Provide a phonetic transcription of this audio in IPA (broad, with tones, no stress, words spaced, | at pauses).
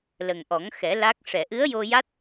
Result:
lə˨˩ŋʔɔ˨˩˦ŋxɛ˨˩˦ la˦˥k̚ ʂɛ˨˩˨ʔɨ˧˥ə̯jo˧ja˦˥t̚